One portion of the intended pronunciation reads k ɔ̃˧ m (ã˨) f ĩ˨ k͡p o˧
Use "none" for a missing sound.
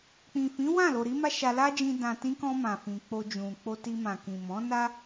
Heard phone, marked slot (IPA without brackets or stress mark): ã˨